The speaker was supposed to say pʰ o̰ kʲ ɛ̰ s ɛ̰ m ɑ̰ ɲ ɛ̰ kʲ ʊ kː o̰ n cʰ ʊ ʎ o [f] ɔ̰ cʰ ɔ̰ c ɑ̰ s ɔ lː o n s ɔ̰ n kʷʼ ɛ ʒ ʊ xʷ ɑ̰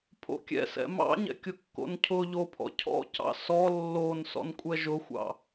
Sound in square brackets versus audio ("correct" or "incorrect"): incorrect